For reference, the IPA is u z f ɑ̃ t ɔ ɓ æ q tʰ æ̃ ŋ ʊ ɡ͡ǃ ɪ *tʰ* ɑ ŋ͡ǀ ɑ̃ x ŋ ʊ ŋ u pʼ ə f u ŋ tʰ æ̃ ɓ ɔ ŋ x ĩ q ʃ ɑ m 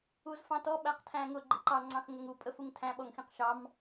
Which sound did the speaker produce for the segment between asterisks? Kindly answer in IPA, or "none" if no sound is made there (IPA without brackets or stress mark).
ǃ